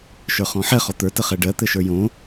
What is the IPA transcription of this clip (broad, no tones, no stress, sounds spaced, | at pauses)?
ʃ ə˞ χ ɔ̃ ħ ɛ χ ɔ t̪ ə˞ t ə χ ɛ ɖ ɜ t̪ ɘ ʃ ə˞ j õ